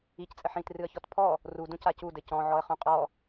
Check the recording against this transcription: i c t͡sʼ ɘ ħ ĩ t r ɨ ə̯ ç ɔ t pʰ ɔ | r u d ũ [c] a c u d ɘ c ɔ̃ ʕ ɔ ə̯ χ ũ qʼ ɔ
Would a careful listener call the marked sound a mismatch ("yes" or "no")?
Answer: no